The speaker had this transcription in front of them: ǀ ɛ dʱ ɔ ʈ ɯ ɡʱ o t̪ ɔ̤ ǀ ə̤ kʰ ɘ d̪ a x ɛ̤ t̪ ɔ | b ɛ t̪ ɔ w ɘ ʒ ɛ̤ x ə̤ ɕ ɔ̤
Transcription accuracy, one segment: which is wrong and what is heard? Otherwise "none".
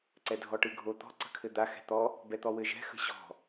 none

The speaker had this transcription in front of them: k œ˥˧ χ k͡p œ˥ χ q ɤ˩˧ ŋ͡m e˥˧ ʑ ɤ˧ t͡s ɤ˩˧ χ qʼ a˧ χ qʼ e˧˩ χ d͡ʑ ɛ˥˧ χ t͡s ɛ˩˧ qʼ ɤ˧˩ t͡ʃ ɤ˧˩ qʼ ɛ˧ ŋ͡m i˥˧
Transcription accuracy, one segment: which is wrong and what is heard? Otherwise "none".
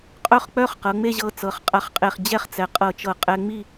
k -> qʼ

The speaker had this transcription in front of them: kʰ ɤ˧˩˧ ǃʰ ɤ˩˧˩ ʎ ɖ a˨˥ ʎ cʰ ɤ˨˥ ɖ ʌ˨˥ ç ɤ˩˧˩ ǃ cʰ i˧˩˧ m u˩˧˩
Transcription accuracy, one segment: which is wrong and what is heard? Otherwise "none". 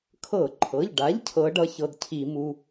ǃ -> d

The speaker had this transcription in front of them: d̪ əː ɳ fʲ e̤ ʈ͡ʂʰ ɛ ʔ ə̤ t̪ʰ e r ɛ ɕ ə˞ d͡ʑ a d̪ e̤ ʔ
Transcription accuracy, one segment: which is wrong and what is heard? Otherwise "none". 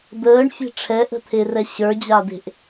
none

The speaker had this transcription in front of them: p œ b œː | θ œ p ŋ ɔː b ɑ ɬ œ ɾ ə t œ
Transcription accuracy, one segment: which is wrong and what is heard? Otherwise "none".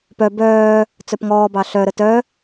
θ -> t͡s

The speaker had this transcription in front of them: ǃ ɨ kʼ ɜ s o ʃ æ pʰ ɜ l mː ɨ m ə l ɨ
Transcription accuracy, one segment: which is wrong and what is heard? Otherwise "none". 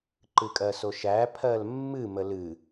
none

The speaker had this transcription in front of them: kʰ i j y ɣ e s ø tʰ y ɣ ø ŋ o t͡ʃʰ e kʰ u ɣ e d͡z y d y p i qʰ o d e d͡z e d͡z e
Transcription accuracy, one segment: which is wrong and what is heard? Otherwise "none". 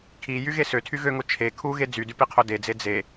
none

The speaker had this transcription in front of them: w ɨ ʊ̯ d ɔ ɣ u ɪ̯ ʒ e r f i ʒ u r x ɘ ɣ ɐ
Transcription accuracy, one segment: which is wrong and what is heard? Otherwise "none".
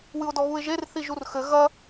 f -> θ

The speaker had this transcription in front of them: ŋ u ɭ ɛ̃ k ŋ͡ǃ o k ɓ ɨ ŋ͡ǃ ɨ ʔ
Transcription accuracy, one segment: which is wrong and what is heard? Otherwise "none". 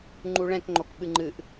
ŋ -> ŋ͡ǃ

